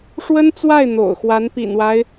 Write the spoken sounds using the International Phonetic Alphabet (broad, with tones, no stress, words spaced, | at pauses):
ʂwə˥nt͡swa˥˩ɪ̯ n̪o̰˨˩ʊ̯xwa˧˥n pḭ˨˩nwa˦ɪ̯